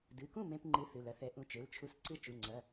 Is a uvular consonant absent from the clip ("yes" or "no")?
yes